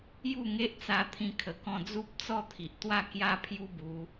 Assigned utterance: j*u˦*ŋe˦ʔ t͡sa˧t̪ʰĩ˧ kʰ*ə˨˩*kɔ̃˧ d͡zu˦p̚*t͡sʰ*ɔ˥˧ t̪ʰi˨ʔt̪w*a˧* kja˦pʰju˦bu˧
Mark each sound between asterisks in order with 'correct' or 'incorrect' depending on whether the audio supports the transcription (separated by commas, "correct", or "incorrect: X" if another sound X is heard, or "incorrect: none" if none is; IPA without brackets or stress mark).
incorrect: u˥˧, correct, incorrect: t͡s, incorrect: a˥˧